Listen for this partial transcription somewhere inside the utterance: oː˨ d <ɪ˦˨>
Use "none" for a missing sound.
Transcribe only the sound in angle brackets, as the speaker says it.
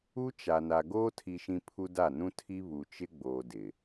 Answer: ɪ˨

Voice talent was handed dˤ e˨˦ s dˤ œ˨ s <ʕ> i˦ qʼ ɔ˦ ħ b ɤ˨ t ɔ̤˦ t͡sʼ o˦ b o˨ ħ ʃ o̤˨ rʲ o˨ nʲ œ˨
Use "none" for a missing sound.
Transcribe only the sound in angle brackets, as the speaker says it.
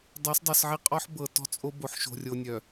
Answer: ʕ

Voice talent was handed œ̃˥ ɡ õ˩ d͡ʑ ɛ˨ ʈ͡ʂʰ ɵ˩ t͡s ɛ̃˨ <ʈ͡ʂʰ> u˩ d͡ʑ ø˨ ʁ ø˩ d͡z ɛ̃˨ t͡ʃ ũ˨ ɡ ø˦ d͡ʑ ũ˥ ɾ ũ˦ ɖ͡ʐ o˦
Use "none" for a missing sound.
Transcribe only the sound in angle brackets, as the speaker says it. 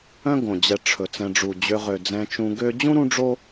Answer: ɖ͡ʐ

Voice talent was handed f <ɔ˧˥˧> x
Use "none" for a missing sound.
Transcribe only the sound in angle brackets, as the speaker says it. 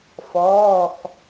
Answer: ɔː˧˥˧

